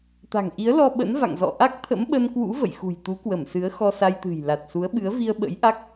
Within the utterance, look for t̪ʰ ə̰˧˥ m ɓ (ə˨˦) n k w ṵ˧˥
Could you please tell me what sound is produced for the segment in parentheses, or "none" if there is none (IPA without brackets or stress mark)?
ə˧